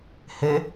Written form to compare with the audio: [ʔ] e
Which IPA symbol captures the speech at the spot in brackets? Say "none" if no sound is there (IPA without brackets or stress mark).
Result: h